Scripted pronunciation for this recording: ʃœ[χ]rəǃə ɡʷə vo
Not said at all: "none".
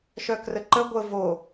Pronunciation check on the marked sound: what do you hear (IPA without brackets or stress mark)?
k